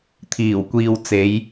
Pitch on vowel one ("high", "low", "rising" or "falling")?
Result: low